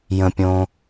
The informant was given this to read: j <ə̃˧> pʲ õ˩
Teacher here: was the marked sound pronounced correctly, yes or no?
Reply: no